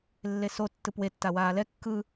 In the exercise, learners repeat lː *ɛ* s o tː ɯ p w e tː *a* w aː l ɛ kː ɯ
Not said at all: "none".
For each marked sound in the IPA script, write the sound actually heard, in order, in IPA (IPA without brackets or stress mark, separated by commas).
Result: e, a